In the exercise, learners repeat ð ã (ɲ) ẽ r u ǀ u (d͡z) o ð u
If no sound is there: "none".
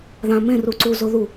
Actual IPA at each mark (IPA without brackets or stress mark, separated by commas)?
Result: m, z